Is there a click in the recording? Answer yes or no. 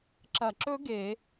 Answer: yes